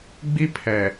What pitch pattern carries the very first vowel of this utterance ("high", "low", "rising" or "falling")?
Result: high